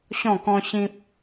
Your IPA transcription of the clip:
ɕ ɔ̃˥˧ k ɔ̃˦ ɕ ĩ˦ p̚

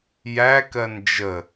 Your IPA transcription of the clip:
j æ k ɜ n d͡ʒ ə

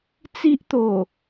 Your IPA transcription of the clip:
t͡s i˦ ʔ t̪ o˨˩

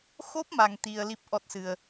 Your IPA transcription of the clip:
x o˦˥ p̚ m a˧ ŋ t̪ i˧ ə̯ l i˦˥ p̚ ʔ ɔ˦˥ t̚ s ɨ˧ ə̯

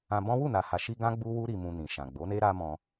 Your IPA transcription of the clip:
ã˧ b ɔ̃˦ w u˦˨ n a˨ h a˨ ʃ i˧ ɡ ã˦ ɡ͡b u˦ w u˦ ɾ i˧ m ũ˧ n ĩ˨ ʃ ã˨ ɡ͡b o˨˦ n e˦ ɾ a˦ m ɔ̃˧

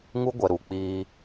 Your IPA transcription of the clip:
ŋ u˦ ɡʷ ɛ˨ ɾ uː˨ k͡p iː˦

